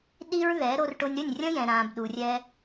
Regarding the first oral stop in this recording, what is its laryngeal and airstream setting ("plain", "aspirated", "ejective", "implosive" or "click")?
implosive